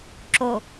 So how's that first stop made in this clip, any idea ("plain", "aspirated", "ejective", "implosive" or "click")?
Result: click